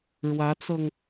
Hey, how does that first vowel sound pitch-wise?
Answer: rising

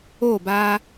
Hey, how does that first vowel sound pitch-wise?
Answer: falling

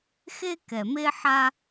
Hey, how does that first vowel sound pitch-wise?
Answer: high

